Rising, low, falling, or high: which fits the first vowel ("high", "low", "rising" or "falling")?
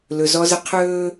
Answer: low